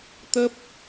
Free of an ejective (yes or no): yes